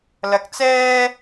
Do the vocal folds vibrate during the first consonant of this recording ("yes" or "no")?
yes